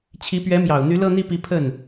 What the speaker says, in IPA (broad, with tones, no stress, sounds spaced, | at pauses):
t͡ɕʰ i˧˥ p ɥ ɛ˧˥ m j ɑ˨˩ ʊ̯ n̪ y˧˥ l ɤ˥˧ n̪ i˥˩ p i˧˥ pʰ ə˥˩ n